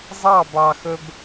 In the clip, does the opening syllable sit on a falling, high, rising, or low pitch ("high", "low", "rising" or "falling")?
falling